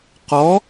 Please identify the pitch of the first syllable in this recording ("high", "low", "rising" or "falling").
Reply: rising